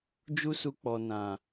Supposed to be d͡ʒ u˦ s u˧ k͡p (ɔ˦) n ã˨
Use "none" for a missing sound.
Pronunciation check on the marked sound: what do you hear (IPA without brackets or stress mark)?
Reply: ɔ˨